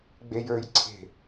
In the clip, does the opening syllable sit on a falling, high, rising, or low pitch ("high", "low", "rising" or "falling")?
low